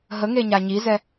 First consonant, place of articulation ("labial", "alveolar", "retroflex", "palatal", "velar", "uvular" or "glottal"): glottal